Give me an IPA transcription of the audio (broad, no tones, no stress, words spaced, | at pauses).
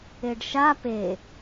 eɖʃa pe